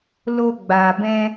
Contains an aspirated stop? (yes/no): no